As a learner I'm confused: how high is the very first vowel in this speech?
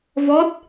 mid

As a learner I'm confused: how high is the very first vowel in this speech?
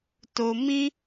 mid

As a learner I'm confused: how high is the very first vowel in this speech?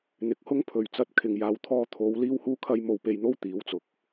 high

